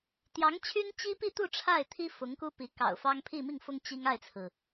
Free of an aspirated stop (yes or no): no